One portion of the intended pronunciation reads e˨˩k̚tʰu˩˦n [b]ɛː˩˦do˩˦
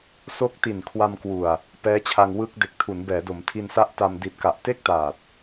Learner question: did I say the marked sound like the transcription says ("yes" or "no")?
yes